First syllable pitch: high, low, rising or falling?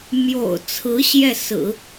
low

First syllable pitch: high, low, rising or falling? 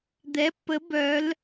rising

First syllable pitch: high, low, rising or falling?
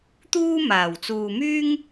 high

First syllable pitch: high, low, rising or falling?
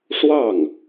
falling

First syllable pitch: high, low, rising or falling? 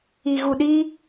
low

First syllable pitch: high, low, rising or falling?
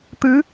rising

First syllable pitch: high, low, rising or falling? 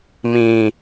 low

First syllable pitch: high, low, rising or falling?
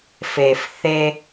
low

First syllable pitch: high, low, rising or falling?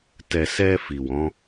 low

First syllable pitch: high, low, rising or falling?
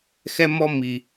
high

